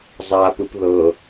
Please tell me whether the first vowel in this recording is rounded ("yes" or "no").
no